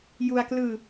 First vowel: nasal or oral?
oral